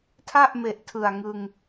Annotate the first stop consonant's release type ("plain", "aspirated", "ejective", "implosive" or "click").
aspirated